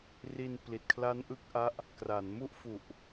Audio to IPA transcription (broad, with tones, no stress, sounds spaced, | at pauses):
r i˧ n p l i˨˩ t̚ kʰ l a˦˥ n ʔ ɯ˦˥ k̚ ʔ a˦˥ ʔ | k r a˩˦ n m u˥˩ ʔ f u˨˩ ʔ